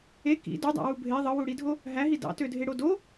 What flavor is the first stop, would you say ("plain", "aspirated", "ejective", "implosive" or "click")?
plain